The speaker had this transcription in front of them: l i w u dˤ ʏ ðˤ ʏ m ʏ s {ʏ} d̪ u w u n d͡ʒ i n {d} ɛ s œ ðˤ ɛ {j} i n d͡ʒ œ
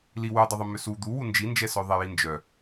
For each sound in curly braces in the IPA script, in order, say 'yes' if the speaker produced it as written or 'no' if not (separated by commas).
no, no, yes